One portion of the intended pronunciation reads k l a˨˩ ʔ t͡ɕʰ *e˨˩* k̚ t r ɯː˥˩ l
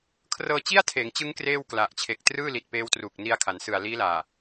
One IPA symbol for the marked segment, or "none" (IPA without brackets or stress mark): e˨˩